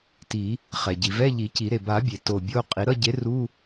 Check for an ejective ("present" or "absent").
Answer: present